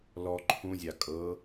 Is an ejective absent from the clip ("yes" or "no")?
no